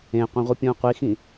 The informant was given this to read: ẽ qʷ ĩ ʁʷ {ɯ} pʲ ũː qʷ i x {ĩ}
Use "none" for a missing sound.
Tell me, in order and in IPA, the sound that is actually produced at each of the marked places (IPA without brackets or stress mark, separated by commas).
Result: ɯ, ĩ